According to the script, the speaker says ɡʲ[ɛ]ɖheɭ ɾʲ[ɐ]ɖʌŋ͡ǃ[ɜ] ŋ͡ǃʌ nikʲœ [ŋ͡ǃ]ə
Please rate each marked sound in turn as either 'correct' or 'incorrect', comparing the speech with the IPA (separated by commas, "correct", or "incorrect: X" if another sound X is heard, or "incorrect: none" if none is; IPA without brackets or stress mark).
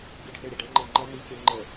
incorrect: œ, correct, correct, correct